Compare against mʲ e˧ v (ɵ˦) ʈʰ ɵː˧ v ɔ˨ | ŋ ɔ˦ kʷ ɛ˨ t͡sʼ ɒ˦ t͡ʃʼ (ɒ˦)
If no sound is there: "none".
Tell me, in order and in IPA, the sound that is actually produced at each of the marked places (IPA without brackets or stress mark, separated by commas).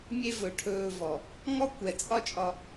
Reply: ɵ˨, ɒ˧